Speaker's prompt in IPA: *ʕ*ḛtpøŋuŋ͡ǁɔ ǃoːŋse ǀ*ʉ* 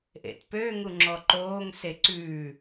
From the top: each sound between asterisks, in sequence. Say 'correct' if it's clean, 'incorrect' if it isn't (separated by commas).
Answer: incorrect, correct